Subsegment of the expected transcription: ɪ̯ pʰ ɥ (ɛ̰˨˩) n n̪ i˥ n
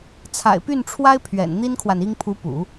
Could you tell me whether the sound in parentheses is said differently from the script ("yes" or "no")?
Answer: no